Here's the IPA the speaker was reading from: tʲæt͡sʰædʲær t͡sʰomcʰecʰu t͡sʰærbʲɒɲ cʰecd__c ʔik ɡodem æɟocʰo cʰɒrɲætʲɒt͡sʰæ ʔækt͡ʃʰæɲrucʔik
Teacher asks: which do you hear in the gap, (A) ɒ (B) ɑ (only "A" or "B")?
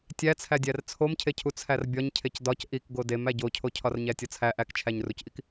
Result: A